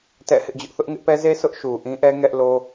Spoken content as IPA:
tɛ̰˦˨ hɪ˦ʔd͡ʑʊ˦ʔ θʊ˦ʔŋɪ˦ʔpɛ˦ ze˦ sʰʊ˦ʔʃu˨ʔĩ˦ʔɛ˦ ŋɛ˦ʔ lo˦

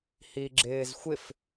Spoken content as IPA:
hiɡ͡ǁɪːzxʷɪf

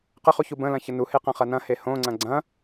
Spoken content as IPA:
qəχuçu bə̃lɐ̃çə nuheqɐ̃χɐ nɐ̃he hõŋ͡ǀɐ̃ ɡ͡ǀɐ̃

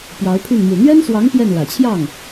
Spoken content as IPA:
pjɑ˧˥ʊ̯pʰy˥˩n mu˨˩n̪ɥɛ˥nswɑ˧˥ŋ pjɛ˥˩n lä˨˩t͡ɕʰjɑ˥˩ŋ

